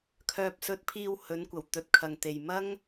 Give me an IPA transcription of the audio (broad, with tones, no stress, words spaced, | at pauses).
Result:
kʰœː˧p̚sɵ˧t̚pʰiː˧w hɵ˨˥nkʷɐ˨˩wt̪ɵ˨t̚kʰɐ˨ŋ t̪e˨jmɐ˥ŋ